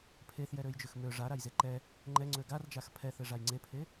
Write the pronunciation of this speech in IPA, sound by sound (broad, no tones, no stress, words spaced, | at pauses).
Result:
pʰeθjɛɾøjd͡ʒøx mø ʐaɾajze ǃɛ | ŋ͡ǃɛŋ͡ǀø ɡard͡ʒax pʰɛθeʐaj ŋ͡ǀepʰe